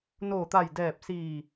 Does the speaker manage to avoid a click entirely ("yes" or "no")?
yes